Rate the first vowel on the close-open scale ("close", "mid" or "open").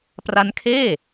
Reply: open